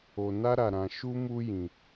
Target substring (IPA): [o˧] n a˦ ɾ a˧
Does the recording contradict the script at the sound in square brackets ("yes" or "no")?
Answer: no